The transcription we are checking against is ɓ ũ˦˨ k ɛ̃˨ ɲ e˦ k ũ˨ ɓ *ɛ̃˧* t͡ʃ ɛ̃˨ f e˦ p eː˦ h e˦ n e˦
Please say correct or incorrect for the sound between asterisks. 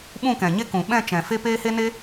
incorrect: ɛ̃˦˨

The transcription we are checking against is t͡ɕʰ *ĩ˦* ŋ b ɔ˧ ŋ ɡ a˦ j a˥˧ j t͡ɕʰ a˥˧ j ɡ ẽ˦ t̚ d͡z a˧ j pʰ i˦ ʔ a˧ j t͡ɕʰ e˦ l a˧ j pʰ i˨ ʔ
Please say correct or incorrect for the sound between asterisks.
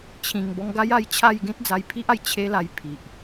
incorrect: ĩ˨˩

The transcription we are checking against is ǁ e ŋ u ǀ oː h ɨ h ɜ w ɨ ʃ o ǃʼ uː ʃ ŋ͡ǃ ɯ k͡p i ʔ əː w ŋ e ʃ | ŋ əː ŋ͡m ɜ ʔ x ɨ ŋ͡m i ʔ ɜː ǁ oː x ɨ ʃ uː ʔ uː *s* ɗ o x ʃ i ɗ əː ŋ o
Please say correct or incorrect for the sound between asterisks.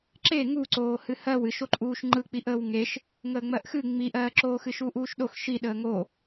incorrect: ʃ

